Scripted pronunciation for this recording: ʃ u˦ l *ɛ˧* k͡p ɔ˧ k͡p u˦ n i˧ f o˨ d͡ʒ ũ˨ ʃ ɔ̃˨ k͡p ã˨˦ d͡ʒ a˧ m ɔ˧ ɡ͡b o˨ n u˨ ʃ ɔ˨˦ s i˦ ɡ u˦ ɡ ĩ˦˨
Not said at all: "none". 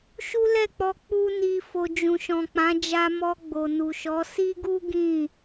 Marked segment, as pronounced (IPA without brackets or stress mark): ɛ˦˨